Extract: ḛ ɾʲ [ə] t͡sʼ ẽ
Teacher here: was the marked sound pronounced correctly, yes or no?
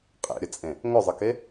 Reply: yes